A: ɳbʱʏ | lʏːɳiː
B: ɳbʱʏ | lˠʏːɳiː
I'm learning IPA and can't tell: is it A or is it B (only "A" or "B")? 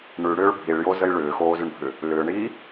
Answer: A